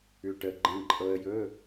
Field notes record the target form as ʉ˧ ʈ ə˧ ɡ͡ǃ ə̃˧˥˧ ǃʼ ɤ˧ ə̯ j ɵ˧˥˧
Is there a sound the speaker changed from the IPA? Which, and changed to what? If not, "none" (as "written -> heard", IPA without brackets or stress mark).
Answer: none